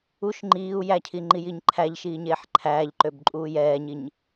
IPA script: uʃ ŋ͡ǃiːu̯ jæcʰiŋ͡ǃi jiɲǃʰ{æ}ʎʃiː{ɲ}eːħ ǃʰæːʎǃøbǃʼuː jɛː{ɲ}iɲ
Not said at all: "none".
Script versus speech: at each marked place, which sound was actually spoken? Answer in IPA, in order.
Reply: æ, ɲ, ɲ

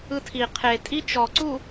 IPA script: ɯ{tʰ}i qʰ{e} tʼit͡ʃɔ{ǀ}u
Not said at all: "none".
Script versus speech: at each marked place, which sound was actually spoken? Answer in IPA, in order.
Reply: tʰ, e, ǀ

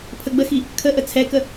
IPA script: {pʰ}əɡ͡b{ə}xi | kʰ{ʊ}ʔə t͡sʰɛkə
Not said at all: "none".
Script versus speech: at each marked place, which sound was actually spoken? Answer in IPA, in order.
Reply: pʰ, ə, ə

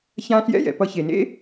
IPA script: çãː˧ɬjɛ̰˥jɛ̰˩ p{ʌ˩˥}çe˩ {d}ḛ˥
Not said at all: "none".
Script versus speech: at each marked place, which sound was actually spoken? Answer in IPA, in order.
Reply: ʌ˧, n

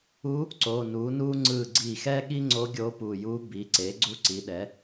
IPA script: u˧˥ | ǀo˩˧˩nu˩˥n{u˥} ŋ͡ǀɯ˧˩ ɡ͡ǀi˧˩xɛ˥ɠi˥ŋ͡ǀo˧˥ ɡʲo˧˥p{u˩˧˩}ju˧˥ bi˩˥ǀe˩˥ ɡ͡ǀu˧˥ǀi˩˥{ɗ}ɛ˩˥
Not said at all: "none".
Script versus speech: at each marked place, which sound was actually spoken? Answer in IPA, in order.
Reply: u˥, u˧˩, ɗ

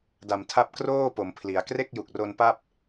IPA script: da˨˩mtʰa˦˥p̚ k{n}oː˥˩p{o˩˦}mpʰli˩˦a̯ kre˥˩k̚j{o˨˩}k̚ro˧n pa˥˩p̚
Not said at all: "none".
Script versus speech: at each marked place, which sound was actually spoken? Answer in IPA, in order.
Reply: r, o˩˦, u˨˩

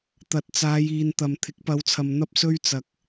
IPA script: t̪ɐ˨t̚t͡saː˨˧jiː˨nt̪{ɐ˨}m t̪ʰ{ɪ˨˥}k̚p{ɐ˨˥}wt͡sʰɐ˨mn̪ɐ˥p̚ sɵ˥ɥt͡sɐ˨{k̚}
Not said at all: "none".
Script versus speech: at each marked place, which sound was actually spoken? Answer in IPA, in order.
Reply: ɐ˨, ɪ˨˥, ɐ˨˧, k̚

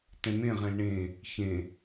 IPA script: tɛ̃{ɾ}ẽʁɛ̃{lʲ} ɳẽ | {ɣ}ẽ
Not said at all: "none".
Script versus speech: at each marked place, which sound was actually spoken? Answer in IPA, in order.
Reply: n̪, l, ç

